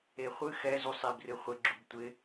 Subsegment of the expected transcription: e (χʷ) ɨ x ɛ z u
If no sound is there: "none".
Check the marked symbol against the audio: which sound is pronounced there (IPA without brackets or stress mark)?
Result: χʷ